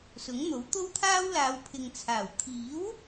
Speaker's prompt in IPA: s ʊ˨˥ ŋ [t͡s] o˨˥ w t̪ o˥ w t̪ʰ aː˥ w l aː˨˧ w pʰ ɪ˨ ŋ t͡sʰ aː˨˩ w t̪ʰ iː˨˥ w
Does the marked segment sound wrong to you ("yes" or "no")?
yes